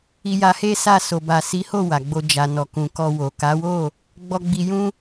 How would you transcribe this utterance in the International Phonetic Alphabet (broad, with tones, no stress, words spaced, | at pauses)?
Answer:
i˧ja˧he˦sa˦˨ so˨ba˨si˨˦ho˦˨ wa˨ɡ͡bo˧ d͡ʒa˨ nɔ˨kũ˨ kɔ˧wo˨ ka˨˦wo˦˨ | ɡ͡bɔ˧ ɡ͡bi˧jũ˦